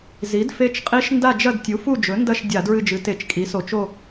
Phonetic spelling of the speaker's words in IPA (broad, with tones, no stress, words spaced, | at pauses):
zi˩˥dfe˧˥t͡ʃqʼi˧˥ʃ nda˦˨d͡ʒɐ˦˨d tʲu˩˥fu˦˨d͡ʒɵ˩˥ ndɐ˦˨ʃ dʲa˧˩˧dɹɨ˦˨d͡ʒɨ˩˥te˧˩˧t͡ʃ kʼi˩˥so˧˩˧t͡ʃ o˦˨